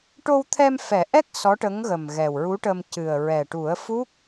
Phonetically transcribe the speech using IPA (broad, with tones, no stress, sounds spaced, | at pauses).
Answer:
ʈ o˧ w t̪ʰ ɛ˧ m f ɛ˨˩˦ ʔ ɛ˦˥ k̚ s ɔ˧˥ ʈ ə˧˥ ŋ ɣ ə˨˩ m ɣ ɛ˨˩ w ɹ u˧˥ ʈ ə˧ m c ɨ˨˩ ə̯ ɹ ɛ˨˩ ʈ u˨˩˦ ə̯ f u˦˥ k̚